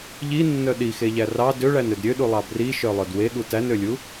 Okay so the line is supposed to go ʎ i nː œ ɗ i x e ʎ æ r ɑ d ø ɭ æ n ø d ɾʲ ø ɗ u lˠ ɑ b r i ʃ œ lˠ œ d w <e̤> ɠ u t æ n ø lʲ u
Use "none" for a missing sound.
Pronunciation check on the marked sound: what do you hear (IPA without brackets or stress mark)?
e